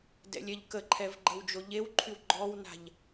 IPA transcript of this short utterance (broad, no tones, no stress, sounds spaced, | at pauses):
d ɛ̰ lʲ ɛ ʎ k ə ǃʰ ɛ v ɡ͡ǃ ə w d͡ʒ o ʎ e w ǃʰ y w ɡ͡ǃ ɔ w n a̤ ʎ